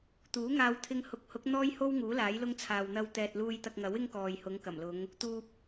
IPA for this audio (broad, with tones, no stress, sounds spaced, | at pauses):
t̪ uː˨˥ ŋ aː˧ w t̪ʰ ɪ˧ ŋ h ʊ˨˥ k̚ h ʊ˨˥ k̚ n̪ ɔː˥ j h o˥ w ŋ uː˨˥ l aː˨˥ j l ʊ˥ ŋ t͡sʰ aː˨ w n̪ ɐ˧ w t̪ ɛː˨ t̚ l uː˧ j t̪ ɐ˧ k̚ ŋ ɐ˨˥ w ɪ˥ ŋ k ɔː˨ j h ʊ˨˧ ŋ k ɐ˨˩ m l ʊ˨˧ ŋ | t̪ uː˨ p̚